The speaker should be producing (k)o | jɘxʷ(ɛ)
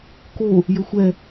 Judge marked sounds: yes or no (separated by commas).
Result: yes, yes